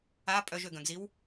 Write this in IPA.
a pʼ œ ʒ ø ɡ œ̃ ɡ z i w

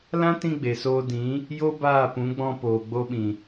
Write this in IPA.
l ã˦ t ĩ˧ ɡ͡b e˨ s oː˧ d ĩ˨˦ | j o˦ b aː˦˨ p ũ˨˦ ɡ͡b ɔ̃˧ p oː˨ ɡ͡b o˧ ɓ ĩ˨

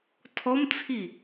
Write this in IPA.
tʰ ɔ m t͡sʰ i

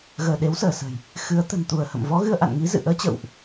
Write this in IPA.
ɣ əː˧˩ ɗ e˨˦ w s əː˧˩ s ə̤˨˩ j | x ɨ˨˦ ə̯ t̪ ə̤˨˩ n t̪ u˧˩ ə̯ h ə̰˧˨ m v ɔ˨˦ ɣ ɨ˧ ə̯ ʔ a̰˧˨ n ŋ i˨˦ z ɨ̰˧˨ ʔ əː˨˦ t͡ɕ ə̰˧˨ w ʔ

